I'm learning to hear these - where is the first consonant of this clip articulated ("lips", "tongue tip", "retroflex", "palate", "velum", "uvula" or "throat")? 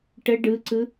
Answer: retroflex